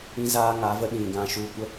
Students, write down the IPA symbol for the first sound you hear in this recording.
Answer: ĩ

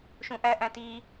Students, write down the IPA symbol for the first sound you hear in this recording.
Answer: ʃ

